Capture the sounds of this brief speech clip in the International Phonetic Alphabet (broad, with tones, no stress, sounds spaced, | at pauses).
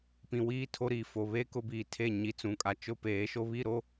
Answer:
p ĩ˨ w iː˦ tʰ o˦ ɾ iː˨ f o˨ β e˦ k ʊ˦ b iː˨ tʰ e˦˨ ɲ i˨ t͡s ũ˨ kʼ a˨ t͡ʃ ʊ˦ p eː˨˦ ʃ o˦ β i˦˨ ɾ o˦